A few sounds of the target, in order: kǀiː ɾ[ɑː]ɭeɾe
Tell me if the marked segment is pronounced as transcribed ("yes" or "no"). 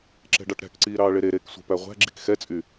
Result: yes